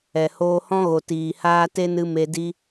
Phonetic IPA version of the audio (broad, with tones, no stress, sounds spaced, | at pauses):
ɛ˨ h oː˧ h ɔ̃˦ ɣ o˨ t iː˨ h aː˦ t e˦ n ɨ˧ m e˧ d i˦